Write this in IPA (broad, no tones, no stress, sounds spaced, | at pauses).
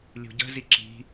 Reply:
lʲ ṳ ɟ ə̤ z i ǁ i̤